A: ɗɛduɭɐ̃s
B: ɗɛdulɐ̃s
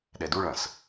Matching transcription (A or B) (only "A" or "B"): A